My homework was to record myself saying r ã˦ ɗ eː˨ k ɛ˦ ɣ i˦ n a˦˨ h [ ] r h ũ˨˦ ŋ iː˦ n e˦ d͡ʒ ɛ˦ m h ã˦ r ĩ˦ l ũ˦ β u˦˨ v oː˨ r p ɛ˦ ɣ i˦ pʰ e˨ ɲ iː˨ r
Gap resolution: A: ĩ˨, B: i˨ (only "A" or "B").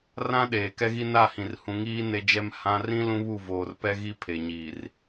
A